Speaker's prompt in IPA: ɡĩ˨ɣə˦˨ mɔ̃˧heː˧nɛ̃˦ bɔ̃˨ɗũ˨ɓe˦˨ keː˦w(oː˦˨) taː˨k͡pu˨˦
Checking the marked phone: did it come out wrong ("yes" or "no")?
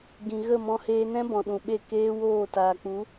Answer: no